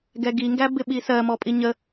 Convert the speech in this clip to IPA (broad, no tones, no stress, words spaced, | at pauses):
ɡɛɡi ŋɡæbɪɓisɜ mɔpʼiɲə